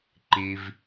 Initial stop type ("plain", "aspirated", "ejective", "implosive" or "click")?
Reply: click